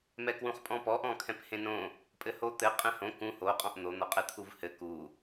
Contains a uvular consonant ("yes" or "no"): yes